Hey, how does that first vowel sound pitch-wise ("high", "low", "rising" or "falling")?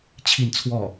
falling